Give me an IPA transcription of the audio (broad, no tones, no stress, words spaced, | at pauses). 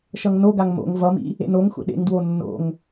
ʃʌŋnoɡaŋ mo̰ŋ vʌmḭ | ḛnoŋxʷɛ̰ ɗḛŋdwo nːo̰ŋ